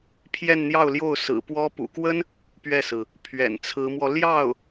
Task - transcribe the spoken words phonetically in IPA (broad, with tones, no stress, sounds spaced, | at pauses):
pʰ j ɛ˥˧ n n̪ j ɑ˥˧ ʊ̯ l j o˥˩ ʊ̯ s ɹ̩˨˩ p w ɔ˥ p ṵ˨˩ k w ə˥ n | p ɥ ɛ˥˩ s ɹ̩˩ | pʰ ɥ ɛ̰˨˩ n t͡sʰ ɹ̩˧˥ m w ɔ˧ l j ɑ˥˩ ʊ̯